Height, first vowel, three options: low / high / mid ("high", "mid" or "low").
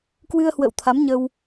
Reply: high